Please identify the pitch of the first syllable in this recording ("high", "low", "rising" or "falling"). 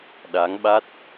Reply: rising